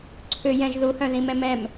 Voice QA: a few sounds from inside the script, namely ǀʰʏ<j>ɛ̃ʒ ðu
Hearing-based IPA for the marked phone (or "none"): j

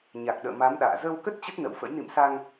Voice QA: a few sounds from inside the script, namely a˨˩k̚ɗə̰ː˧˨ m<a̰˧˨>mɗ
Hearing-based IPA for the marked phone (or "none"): a˨˦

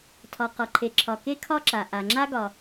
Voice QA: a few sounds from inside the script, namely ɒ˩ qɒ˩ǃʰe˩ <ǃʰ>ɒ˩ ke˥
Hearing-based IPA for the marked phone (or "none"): ǁʰ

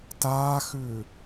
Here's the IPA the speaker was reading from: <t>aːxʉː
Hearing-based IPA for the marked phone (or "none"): t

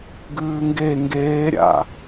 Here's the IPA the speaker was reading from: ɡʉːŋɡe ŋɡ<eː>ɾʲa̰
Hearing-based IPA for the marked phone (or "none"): eː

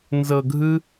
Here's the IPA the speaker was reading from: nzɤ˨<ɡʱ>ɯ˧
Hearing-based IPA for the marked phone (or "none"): ɡʱ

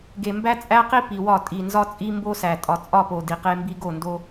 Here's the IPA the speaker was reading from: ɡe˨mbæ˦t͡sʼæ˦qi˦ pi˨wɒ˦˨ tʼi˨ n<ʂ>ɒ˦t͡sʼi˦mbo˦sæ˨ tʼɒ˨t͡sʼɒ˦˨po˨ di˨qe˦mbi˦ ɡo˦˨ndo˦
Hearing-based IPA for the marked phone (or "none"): z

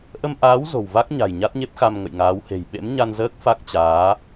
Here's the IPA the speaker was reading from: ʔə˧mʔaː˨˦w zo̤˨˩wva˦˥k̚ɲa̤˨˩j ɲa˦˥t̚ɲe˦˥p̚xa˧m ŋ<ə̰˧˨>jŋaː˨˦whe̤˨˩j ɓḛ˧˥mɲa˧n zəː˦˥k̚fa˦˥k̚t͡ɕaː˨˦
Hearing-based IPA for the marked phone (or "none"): ə̰˧˨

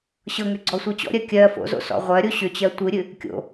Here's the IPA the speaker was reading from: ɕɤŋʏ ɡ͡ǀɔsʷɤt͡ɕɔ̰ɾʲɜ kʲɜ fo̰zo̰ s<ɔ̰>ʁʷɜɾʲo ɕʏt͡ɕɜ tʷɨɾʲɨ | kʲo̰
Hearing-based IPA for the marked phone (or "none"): ɔ̰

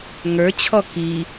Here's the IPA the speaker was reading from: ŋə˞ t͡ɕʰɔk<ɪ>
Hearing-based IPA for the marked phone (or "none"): i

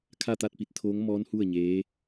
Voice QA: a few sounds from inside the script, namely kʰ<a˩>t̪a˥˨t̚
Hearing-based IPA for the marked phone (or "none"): a˥˨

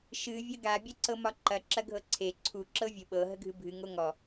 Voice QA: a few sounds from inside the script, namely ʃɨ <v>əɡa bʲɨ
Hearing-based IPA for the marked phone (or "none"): vʲ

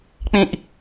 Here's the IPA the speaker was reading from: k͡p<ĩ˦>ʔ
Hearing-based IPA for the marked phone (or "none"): ĩ˦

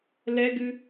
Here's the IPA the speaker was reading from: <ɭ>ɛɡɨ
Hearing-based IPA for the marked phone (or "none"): l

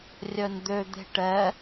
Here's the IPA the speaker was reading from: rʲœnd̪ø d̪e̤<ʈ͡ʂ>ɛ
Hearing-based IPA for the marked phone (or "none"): ʈ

